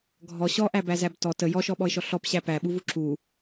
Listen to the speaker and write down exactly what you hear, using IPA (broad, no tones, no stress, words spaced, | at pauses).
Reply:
ɡʱɔ ɕɔʔæbæzæb tɔ tə jɔʃɔɓɔɪ̯ʃɔ ɬɔpɕæ pæɓuvu ǁu